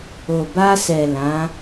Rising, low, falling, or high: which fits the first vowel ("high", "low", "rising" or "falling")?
low